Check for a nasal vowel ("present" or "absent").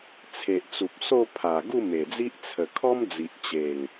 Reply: absent